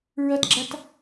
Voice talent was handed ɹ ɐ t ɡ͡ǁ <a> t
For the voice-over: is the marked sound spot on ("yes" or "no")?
yes